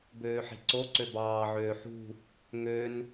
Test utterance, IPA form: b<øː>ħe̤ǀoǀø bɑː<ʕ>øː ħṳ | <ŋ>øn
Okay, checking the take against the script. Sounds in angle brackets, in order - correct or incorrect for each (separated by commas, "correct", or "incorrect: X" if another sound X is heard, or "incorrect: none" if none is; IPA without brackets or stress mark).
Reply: correct, correct, correct